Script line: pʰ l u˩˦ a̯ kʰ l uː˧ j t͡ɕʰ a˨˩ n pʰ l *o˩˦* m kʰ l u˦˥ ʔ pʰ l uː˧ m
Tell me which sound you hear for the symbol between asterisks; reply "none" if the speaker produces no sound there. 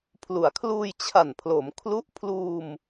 o˩˦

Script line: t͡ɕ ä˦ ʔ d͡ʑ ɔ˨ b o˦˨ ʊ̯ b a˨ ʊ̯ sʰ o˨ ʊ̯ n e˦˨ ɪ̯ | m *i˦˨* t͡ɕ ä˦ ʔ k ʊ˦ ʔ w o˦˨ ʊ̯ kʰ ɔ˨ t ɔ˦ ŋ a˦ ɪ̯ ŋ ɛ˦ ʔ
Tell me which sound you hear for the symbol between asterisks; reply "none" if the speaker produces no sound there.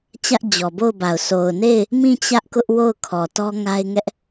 ĩ˦˨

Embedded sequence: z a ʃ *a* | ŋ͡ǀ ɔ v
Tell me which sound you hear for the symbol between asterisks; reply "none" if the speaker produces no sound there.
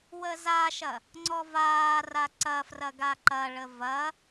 ɐ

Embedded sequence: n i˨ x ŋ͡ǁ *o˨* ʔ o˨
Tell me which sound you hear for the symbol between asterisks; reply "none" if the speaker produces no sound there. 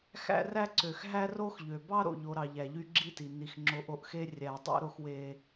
o˨˦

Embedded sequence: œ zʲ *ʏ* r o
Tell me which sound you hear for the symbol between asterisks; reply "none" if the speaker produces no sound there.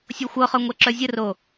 ə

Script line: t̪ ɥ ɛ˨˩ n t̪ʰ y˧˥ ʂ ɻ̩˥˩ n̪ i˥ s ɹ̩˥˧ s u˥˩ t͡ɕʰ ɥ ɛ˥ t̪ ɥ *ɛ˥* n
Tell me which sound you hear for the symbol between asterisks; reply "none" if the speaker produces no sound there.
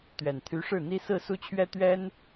ɛ˥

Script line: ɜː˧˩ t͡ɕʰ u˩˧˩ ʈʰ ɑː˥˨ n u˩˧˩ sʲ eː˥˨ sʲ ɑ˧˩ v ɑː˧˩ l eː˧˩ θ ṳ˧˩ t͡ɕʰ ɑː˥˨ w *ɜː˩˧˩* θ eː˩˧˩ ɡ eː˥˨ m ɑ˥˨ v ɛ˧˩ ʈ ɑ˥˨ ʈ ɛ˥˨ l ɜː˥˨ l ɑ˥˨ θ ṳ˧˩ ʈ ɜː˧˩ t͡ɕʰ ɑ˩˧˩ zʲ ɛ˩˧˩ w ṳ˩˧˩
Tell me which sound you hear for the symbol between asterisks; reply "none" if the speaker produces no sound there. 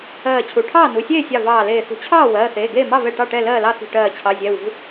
ɜː˩˧˩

